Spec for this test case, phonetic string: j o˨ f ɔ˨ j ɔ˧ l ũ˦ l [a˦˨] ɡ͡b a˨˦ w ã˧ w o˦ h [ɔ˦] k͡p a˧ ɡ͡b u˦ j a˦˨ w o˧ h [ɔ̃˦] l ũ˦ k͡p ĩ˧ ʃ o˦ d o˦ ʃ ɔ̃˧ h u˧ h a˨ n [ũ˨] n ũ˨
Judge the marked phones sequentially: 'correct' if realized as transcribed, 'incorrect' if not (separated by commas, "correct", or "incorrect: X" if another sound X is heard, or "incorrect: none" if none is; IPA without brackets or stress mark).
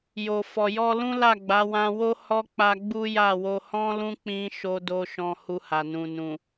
correct, correct, correct, correct